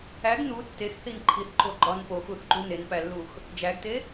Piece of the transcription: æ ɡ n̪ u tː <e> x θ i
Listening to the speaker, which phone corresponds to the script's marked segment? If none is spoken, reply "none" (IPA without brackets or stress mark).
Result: e